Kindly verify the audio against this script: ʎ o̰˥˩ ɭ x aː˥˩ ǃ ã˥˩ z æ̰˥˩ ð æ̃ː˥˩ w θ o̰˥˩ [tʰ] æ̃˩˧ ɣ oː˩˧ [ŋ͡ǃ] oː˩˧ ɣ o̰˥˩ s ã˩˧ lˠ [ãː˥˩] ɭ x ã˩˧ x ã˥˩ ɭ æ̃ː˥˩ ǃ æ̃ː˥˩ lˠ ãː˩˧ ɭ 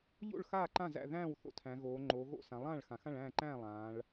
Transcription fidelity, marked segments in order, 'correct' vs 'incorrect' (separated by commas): correct, correct, correct